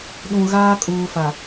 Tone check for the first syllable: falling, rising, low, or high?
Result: low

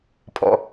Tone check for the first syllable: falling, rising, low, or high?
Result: low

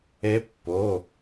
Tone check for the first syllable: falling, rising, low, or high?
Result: rising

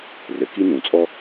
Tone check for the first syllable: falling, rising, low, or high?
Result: low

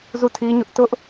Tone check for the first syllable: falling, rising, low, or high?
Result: falling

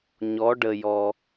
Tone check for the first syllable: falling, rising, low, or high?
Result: rising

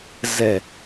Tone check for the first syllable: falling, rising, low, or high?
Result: low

